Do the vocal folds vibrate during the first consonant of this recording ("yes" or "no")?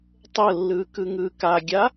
no